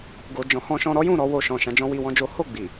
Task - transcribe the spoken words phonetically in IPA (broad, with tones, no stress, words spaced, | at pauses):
ɡo˨d͡ʒɔ̃˨˦ hɔ̃˧ʃɔ̃˧ɾɔ˦jũ˦˨ ɾɔ˨˦wo˧ʃɔ̃˨ʃã˨˦ d͡ʒɔ̃˦wi˧wɔ̃˦d͡ʒo˦ ho˦˨ɡ͡bi˨